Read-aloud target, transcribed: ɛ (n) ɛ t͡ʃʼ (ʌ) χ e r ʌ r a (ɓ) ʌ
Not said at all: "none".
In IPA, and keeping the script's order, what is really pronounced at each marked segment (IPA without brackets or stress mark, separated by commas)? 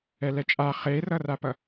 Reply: l, a, p